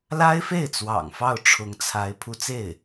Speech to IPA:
l a˥ ɪ̯ f e˥˩ ɪ̯ t͡s w ɑ̰˨˩ ŋ f ɑ˥˩ ʊ̯ ʈ͡ʂʰ ʊ˧˥ ŋ t͡sʰ a˧˥ ɪ̯ pʰ u˧˥ t͡s e˥˩ ɪ̯

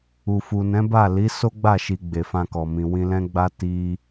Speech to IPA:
u˨ f u˨ n ɛ̃˨˦ b a˦˨ l i˨˦ s o˦ ɡ͡b a˦˨ ʃ i˨ ɡ͡b e˨ f ã˧ k ɔ˨ m ĩ˨ w ĩ˧ l ɛ̃˦ ɡ͡b a˦ t i˦

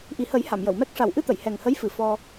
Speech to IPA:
ʔ i˨˩ h ə˨˩˦ j h a˨˩˨ m j ə˨˩˨ w m ɛ˦˥ k̚ ʂ a˨˩ w ʔ ɨ˧ t̪ ə˨˩˨ j h ɛ˨˩ ŋ h ə˧˥ j f ɨ˨˩ f ɔ˧

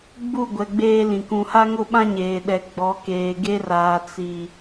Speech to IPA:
ɡ͡b u˦˨ ɡʷ ɛ˨ ɡ͡b eː˦ l ĩ˨ k ũ˨ h a˦ ŋ ʊ˦˨ ɓ ã˦ ɲ eː˨ ɗ ɛ˨ ɡ͡b ɔ˨˦ k eː˨ ɡ e˦ r aː˨ t͡s i˨

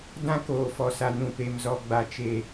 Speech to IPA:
d ã˦ k oː˨ f ɔ˨ s a˨ n ũ˨ p e˨ m z ɔ˨ ɡ͡b a˨ t͡ʃ e˨

